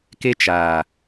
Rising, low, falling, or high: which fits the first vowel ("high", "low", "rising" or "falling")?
high